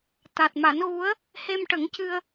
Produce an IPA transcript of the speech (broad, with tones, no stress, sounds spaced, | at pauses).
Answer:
t̪ a˨˩ t̚ m a˨˩˦ n ɣ u˧˥ ə̯ | h e˧ m ʈ ə˨˩˦ ŋ c ɨ˧ ə̯